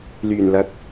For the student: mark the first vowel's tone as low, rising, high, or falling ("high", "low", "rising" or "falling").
low